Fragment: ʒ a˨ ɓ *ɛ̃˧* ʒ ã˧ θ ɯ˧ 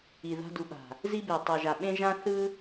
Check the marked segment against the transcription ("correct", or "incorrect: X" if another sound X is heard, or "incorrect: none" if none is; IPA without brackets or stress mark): incorrect: ẽ˧